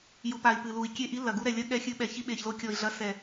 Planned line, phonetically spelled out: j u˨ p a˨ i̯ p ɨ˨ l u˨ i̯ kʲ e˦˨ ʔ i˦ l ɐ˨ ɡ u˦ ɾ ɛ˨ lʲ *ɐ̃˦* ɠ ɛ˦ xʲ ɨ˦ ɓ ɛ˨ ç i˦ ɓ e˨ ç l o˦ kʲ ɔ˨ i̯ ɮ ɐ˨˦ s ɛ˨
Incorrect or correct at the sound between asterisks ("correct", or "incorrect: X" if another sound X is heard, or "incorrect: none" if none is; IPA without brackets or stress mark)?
incorrect: ɐ˦